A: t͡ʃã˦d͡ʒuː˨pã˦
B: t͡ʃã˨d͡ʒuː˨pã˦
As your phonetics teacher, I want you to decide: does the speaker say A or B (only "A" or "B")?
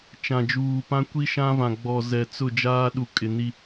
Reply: B